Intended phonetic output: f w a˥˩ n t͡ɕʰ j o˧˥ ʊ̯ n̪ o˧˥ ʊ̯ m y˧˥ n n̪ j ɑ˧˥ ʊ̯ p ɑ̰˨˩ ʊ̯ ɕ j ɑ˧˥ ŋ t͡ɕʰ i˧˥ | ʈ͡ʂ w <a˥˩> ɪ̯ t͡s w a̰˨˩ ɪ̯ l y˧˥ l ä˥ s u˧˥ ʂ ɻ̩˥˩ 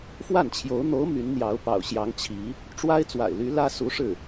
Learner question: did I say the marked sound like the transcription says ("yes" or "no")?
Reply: no